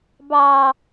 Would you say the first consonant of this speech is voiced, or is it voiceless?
voiced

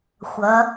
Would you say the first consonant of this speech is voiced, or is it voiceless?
voiceless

